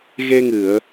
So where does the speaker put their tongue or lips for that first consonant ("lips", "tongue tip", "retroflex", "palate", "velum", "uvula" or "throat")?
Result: velum